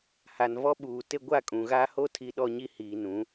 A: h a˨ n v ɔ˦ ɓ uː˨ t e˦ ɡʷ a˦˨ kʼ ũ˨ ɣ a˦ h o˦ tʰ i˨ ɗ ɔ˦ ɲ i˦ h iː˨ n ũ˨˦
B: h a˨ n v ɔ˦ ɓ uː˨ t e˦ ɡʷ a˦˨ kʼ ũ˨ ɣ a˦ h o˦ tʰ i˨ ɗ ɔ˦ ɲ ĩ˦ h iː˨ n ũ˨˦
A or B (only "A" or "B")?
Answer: A